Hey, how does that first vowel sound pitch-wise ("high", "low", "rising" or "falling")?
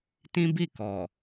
high